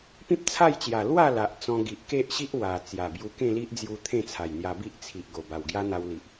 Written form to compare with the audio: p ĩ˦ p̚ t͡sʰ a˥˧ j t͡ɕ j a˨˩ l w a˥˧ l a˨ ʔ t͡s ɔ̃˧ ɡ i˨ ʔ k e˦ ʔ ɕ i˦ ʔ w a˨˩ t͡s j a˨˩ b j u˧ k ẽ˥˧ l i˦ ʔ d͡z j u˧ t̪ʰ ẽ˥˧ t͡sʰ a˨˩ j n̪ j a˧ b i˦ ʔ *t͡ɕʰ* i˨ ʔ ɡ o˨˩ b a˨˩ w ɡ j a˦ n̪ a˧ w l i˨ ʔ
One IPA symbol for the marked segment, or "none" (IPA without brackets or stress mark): t͡sʰ